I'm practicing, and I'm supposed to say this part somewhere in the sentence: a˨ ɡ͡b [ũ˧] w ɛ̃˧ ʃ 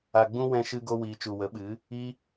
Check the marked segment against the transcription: correct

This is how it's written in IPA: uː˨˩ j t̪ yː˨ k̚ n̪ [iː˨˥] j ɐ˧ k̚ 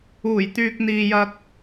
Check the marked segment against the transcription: incorrect: iː˨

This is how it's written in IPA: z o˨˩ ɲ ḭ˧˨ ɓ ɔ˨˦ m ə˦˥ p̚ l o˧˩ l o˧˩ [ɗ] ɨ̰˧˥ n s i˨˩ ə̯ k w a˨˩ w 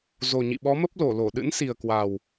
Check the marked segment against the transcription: correct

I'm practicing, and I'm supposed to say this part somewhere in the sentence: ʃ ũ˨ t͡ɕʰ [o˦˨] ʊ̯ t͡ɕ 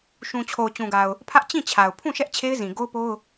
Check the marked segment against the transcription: incorrect: o˨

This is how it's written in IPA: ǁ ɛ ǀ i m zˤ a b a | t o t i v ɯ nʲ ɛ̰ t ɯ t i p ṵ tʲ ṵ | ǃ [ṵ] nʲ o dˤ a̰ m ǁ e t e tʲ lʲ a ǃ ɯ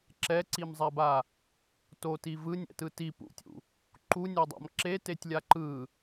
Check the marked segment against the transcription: incorrect: u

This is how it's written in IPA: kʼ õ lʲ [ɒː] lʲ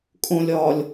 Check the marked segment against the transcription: correct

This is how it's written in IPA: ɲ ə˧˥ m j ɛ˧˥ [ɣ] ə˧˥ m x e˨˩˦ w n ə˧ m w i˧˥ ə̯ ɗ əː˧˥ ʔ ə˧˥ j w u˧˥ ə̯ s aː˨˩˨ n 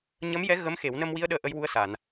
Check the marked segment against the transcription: correct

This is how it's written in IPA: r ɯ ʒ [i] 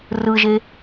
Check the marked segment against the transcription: incorrect: e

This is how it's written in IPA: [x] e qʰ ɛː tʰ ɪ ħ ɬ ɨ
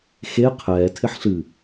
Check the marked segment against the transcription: correct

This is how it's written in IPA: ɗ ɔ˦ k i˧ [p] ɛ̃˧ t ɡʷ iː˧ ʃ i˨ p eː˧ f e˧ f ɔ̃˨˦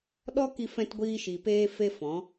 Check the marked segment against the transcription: incorrect: f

